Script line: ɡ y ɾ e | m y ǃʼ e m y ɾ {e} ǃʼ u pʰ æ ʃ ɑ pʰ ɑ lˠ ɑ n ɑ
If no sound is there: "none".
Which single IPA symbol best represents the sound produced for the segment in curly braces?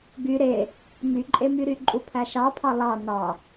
y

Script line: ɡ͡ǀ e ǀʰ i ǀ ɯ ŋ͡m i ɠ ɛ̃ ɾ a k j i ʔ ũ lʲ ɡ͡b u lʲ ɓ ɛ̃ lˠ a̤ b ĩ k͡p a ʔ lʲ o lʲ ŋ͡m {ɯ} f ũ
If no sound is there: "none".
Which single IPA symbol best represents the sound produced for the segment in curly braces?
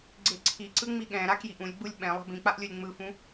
ɯ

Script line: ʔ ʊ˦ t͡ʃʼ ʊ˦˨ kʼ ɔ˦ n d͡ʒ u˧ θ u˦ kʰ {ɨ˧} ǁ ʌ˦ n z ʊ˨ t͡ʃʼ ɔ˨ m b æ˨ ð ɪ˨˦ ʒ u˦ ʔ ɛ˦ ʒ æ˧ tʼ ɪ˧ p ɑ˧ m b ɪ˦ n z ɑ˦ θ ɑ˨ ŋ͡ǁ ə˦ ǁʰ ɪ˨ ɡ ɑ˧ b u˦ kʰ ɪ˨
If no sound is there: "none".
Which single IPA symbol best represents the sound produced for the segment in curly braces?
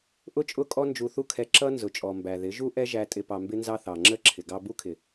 ɛ˧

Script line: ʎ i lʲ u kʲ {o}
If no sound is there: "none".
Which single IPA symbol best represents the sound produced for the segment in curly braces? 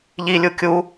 u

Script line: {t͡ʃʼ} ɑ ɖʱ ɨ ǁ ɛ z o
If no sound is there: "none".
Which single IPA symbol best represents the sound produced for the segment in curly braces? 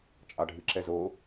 t͡ʃʼ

